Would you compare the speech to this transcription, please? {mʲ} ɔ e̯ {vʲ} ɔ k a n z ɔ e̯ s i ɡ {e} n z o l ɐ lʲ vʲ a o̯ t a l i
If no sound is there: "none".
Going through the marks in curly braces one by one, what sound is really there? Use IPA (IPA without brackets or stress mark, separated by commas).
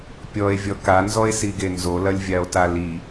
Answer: pʲ, vʲ, e